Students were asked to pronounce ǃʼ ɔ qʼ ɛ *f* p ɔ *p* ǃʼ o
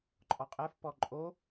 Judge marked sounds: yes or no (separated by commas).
yes, no